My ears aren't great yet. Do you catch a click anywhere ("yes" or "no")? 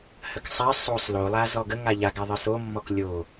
no